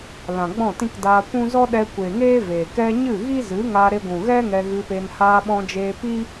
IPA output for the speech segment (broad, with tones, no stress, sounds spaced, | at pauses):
l ã˨ ɡ͡b ɔ̃˦˨ t ĩ˦ k d aː˧ kʷ ũ˦ z ɔ˦ ɗ ɛ˧ kʷ e˨ ŋ eː˦ v eː˨ k ɛ˦ ɲ ɨ˦˨ ɣ i˦ z ɨ˨˦ ŋ a˧ ɾ e˧ ɡʷ ũ˨ ɣ ɛ˦ ŋ ɛ˧ ɣ ɨ˧ p e˧ n h aː˧ ɓ ɔ̃˧ d͡ʒ eː˧ p i˦